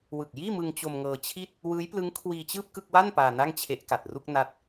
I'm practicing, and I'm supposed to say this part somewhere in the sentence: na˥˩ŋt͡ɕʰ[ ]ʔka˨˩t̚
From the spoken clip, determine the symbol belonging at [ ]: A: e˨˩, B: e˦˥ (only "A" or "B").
B